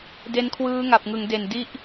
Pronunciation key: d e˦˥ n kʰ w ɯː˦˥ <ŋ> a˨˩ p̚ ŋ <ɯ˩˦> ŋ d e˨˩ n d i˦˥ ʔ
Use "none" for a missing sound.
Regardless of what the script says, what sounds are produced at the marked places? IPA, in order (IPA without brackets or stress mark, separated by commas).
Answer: ŋ, ɯ˩˦